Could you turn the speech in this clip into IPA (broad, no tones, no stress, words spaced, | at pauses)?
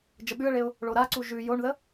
d͡ʒəɓʉə̯ɭeʊ̯ | ɭoɾaǀu ʒʉ joɳðə